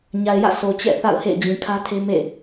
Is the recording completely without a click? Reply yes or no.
yes